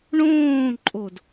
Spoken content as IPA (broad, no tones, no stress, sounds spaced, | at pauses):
ɳ õː ǃʼ o d